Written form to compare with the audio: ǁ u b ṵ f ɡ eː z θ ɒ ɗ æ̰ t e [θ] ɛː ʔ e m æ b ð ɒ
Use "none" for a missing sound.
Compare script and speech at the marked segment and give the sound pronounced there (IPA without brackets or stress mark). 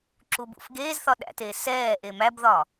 s